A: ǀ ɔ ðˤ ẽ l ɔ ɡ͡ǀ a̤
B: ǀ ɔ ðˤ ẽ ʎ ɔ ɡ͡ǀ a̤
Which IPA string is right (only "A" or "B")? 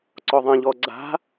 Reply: B